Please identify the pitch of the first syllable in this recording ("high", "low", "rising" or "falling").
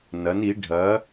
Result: rising